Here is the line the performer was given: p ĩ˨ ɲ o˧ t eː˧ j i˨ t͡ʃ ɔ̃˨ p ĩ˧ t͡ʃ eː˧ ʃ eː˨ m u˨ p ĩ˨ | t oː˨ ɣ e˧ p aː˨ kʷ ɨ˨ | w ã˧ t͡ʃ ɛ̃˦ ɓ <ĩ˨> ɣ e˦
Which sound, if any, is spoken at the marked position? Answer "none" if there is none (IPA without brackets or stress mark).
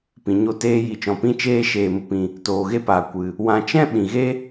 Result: ĩ˨